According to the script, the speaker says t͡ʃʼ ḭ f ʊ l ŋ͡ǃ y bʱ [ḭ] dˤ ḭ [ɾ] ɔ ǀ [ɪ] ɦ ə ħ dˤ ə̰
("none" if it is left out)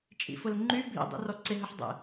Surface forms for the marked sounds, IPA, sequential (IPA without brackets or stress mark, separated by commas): ḭ, r, ɪ